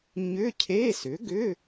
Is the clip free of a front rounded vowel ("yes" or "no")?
no